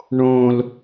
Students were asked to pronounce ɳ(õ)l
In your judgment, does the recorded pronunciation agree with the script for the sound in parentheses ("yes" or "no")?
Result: yes